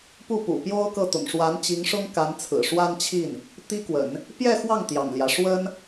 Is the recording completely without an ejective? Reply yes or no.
yes